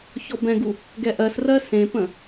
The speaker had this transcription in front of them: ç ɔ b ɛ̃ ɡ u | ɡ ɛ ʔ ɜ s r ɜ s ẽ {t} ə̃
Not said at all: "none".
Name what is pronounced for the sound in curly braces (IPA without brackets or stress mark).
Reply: p